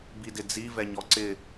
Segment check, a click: present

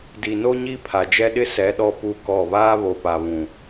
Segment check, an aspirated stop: present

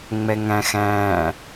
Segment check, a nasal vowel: present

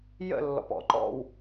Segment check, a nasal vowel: absent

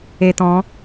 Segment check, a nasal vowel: present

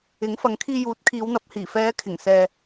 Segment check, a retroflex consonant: absent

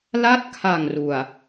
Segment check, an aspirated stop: present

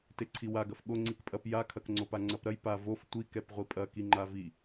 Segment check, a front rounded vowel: absent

